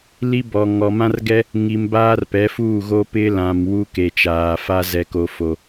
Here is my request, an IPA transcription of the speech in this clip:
l i˦ b ɔ˨ ŋ ɔ˨ m ã˦ r ɡ ɛ˦ | ŋ i˨ m b aː˦ r p ɛ˨˦ f uː˦˨ ɣ o˦ p ɪ˦ l ã˨ m w u˦ k e˨ t͡ʃ aː˨ f a˦ z ɛ˨ k o˨ f o˨

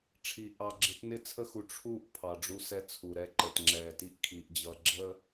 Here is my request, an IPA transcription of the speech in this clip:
ʈ͡ʂʰ i˨ ʔ ɑ˨ ɡ͡ǁ ɪ˨˦ t n ɪ˦˨ t͡sʰ ə˦ x u˨ ʈ͡ʂʰ u˦˨ ʔ pʰ ɑ˨ ɖ͡ʐ u˦ s ɛ˦ t͡sʰ u˨ ɾ ɛ˦˨ ǃ ə˨ t ŋ͡ǁ ɛː˨ t i˦ ʔ kʰ iː˨ ʔ d͡ʑ ʌ˨ ɡ͡ǁ ə˦

